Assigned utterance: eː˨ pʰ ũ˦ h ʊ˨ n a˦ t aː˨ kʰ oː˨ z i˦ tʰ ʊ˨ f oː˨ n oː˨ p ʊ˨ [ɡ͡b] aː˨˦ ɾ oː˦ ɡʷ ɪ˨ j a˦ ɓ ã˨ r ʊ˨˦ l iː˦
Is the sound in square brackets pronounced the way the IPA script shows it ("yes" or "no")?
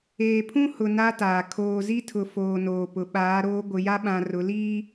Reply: no